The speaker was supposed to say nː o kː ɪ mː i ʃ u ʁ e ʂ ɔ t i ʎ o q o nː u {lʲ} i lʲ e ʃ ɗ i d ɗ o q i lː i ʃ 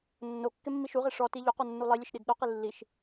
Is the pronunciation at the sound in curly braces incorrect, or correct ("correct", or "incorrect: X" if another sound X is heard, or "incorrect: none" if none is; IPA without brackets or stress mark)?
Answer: incorrect: lˠ